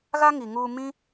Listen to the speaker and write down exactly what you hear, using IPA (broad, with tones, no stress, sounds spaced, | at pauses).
ɣ a˦ ŋ i˨ ŋ u˧ m ĩ˦